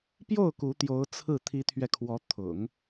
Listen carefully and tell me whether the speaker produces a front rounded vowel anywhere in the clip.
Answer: no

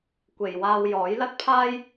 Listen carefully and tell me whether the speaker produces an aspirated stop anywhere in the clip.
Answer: yes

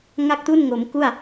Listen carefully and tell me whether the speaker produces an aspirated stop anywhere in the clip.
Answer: no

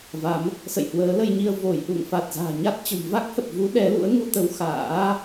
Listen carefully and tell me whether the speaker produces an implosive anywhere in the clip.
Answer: yes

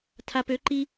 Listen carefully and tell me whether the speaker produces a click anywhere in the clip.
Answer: yes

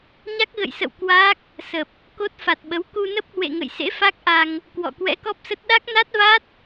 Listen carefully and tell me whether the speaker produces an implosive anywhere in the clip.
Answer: yes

